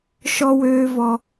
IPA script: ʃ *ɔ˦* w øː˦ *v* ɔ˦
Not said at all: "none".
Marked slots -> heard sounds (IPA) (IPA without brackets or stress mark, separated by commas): ɔ˦, v